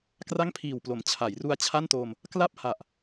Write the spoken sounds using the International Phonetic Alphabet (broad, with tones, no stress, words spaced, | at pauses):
kra˥˩ŋpʰiː˨˩wplo˩˦m t͡ɕʰa˩˦jru˧a̯t͡ɕʰa˥˩ntoː˧m | kla˥˩p̚ha˨˩ʔ